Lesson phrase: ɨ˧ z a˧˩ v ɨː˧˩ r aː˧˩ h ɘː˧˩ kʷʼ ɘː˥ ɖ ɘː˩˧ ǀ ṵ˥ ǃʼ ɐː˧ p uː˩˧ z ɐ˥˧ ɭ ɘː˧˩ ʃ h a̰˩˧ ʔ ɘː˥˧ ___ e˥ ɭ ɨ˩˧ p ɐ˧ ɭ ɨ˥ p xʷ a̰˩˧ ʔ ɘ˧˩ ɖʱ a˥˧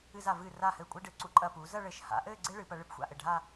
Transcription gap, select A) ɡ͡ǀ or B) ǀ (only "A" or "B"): A